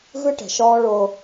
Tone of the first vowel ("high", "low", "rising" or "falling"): high